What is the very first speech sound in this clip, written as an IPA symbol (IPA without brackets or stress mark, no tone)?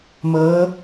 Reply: m